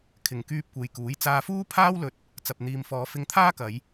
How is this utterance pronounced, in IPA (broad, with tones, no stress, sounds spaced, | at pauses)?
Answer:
kʰ ɪ˨ ŋ k yː˧ p̚ kʷ e˨ j k uː˨˥ j t͡s aː˧ f uː˥ pʰ aː˥ w l ɵ˧ t̚ | t͡s ɐ˨ p̚ n̪ iː˨ m f ɔː˨˧ f ɪ˧ ŋ t̪ʰ aː˥ k ɐ˨˧ j